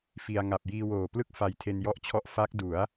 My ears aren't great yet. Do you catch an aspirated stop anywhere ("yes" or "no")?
yes